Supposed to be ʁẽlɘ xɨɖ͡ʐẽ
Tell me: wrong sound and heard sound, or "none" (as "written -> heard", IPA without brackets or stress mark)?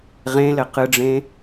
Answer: x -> q